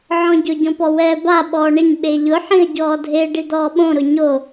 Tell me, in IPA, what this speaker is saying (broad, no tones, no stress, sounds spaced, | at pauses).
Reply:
ʕ ɔ̃ ɟ ʊ ɟ ɔ̃ p ɔ w ɛː b a ɓ ɔː ɳ ɪ ɲ ɓ e ʎ ʊ ħ ĩ ə̯ ɟ ɔː dʱ e ɖ i d̪ ɔː ɓ õ ɾ ʊ ɲ o